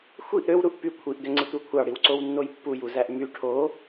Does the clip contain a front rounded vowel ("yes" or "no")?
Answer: yes